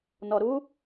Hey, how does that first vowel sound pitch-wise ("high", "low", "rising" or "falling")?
low